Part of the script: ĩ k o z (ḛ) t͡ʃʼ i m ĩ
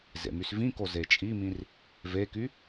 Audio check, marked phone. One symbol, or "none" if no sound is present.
e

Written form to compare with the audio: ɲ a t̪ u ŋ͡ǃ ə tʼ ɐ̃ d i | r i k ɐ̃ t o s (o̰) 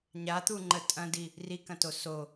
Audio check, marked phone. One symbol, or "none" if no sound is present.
o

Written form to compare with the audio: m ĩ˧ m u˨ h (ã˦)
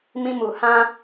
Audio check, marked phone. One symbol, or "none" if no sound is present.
ã˦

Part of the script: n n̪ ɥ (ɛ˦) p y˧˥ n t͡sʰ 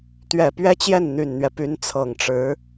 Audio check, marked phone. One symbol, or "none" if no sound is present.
ɛ˦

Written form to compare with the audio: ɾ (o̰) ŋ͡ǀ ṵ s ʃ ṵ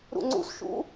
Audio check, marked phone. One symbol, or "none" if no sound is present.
ṵ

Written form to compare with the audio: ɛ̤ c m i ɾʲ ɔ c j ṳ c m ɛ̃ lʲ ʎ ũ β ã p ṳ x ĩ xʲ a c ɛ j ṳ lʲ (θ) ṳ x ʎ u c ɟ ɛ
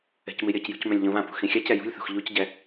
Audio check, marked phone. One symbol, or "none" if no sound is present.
θ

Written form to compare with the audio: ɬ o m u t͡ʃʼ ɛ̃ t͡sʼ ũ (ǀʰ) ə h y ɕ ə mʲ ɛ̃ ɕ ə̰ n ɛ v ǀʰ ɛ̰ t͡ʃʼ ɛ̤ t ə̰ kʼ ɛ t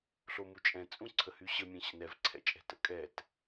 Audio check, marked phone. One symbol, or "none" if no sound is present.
ǀʰ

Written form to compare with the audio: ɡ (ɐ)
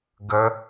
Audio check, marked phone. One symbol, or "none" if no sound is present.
ə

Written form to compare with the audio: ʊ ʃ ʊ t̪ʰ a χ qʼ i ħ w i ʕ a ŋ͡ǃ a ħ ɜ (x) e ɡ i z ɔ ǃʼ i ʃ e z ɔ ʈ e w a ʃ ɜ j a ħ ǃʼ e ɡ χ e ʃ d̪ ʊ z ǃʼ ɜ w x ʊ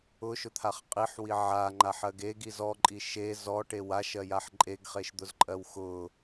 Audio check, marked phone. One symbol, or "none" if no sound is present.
ɡ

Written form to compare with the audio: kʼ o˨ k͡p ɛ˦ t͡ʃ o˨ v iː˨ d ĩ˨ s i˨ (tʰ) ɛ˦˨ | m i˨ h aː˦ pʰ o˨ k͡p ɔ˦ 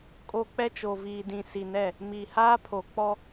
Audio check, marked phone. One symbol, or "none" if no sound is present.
n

